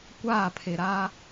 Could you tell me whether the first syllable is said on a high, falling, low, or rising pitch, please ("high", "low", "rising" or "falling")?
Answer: falling